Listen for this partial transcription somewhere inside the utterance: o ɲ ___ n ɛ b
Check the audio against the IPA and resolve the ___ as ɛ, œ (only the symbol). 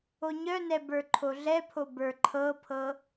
œ